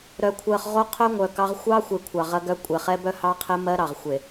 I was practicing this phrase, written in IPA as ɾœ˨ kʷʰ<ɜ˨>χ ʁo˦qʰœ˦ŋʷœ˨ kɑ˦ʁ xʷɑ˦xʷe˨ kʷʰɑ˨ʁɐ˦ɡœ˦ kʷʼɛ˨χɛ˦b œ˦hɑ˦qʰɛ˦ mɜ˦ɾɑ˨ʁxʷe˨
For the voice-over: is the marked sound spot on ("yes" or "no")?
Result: yes